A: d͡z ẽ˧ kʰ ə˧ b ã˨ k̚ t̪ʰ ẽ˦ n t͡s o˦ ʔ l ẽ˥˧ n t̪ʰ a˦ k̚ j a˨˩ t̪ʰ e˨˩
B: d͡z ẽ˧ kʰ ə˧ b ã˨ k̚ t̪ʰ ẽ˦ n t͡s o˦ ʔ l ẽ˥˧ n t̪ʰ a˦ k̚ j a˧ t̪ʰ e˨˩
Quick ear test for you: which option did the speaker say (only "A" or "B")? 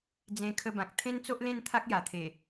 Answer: A